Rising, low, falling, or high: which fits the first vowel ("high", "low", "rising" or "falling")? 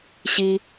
high